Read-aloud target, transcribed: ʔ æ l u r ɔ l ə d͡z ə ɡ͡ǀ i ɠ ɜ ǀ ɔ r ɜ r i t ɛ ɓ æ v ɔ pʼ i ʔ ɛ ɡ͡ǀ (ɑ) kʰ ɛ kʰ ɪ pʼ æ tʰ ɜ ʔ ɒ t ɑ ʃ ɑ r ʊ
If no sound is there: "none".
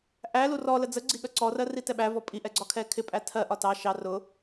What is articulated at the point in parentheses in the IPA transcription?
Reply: ɒ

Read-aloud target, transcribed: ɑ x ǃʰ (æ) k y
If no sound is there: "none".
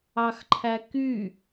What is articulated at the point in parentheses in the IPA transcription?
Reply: æ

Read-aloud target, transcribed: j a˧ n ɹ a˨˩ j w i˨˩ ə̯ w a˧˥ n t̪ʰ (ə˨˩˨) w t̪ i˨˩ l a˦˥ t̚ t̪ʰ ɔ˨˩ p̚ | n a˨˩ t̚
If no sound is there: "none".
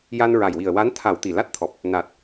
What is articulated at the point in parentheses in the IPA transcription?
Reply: a˨˩˨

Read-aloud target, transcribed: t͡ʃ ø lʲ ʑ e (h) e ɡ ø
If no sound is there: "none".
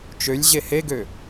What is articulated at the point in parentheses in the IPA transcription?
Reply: h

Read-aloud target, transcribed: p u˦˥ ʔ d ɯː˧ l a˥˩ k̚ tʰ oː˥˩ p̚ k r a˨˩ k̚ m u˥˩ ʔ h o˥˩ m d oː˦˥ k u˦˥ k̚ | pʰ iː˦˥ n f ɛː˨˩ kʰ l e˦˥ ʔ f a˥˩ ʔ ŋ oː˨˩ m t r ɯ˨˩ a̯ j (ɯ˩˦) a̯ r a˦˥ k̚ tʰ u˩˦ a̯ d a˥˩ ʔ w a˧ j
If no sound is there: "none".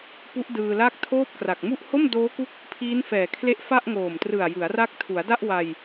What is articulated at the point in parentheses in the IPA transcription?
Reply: ɯ˩˦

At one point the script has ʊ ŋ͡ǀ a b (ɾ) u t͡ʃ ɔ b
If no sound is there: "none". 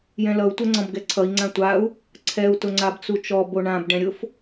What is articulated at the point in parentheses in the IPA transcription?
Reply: t͡s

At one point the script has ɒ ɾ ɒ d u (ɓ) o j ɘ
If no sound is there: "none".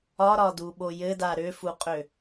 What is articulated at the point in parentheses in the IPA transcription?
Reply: ɓ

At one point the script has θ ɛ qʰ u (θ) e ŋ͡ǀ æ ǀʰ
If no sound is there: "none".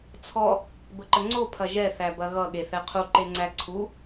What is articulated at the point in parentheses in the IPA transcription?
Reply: ǃ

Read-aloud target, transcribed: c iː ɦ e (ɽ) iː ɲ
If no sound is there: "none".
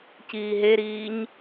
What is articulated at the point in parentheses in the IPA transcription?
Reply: ɾ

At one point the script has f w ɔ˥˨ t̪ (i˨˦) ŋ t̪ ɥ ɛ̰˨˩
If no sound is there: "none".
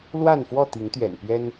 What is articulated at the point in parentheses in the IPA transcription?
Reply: i˨˦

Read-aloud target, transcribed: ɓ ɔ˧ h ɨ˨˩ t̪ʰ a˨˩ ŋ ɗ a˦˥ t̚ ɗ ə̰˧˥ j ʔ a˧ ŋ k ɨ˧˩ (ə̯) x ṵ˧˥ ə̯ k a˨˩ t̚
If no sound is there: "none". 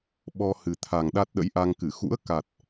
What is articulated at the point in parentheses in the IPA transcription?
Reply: none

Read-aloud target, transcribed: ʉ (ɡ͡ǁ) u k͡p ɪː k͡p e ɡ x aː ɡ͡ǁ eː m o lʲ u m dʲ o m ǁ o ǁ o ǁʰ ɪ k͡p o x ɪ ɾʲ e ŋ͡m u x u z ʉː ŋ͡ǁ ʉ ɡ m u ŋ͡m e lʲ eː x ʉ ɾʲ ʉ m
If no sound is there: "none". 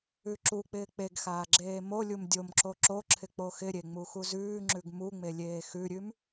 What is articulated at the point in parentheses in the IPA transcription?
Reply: ǁ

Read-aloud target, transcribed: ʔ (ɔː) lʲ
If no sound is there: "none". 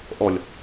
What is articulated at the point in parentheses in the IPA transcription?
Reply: ɔ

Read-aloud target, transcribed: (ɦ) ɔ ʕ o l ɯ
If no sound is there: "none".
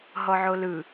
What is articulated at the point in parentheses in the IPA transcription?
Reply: ɦ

